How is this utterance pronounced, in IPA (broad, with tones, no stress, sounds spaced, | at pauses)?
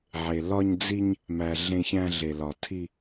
ʕ e˨ l ɒ˧ ɲ d͡z i˧ ɲ | m æ˨ ɮ ẽ˧ ç æ̃˧ ɮ e˨ l ɒ˨ tʰ i˧